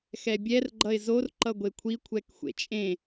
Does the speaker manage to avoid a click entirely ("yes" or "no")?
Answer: no